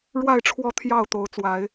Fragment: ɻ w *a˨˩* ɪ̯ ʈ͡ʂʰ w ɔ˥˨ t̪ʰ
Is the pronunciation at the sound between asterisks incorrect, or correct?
incorrect